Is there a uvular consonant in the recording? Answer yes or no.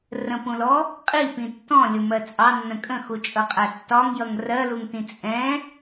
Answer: yes